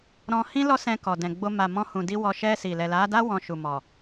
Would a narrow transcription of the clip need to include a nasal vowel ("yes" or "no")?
yes